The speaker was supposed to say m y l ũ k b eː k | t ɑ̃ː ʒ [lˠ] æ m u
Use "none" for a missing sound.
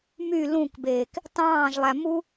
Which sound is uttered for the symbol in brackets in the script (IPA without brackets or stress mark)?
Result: lˠ